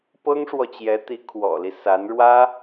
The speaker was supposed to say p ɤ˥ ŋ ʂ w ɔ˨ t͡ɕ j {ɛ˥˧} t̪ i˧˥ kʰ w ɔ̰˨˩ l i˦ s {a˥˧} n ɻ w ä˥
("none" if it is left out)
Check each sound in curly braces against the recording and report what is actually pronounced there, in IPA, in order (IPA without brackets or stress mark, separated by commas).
ɛ˧˥, a˧˥